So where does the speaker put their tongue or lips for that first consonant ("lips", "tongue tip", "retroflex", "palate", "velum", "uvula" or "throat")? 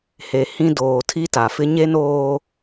throat